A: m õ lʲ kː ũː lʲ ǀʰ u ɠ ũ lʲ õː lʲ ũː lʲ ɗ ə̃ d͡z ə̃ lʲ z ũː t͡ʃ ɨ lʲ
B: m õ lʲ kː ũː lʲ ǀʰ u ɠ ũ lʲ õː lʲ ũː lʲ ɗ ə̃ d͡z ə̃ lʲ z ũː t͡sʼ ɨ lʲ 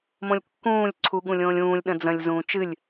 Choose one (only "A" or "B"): A